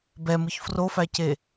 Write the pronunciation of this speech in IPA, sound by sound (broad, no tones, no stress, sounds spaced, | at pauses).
b ɛ m ɯ ç f r o f æ c e